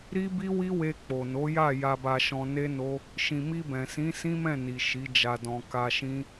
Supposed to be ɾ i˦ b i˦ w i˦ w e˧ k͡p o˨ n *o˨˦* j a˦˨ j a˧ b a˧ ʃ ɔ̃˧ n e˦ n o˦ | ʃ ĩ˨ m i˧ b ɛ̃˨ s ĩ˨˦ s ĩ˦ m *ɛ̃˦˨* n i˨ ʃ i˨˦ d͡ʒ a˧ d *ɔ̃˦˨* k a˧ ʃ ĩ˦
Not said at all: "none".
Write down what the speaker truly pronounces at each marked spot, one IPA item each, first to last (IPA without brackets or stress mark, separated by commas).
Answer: o˨˦, ɛ̃˦˨, ɔ̃˧